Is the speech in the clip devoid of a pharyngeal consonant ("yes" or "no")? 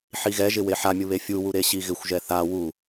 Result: no